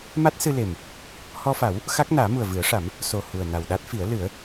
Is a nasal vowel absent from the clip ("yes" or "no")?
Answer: yes